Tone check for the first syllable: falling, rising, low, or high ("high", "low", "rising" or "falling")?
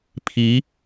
rising